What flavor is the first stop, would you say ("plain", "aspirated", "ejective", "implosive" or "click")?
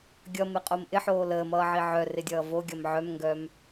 plain